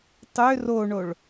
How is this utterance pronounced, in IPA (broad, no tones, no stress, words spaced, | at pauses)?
tˤø roɳoɭ